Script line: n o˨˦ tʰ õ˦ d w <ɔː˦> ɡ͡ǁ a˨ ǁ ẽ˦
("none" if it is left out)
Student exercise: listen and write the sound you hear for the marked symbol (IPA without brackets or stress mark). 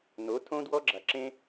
ɔ˦